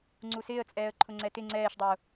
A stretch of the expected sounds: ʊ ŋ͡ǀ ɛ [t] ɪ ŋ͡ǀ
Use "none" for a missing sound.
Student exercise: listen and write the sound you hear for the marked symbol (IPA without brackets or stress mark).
t